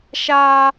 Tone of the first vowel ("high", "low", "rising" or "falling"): high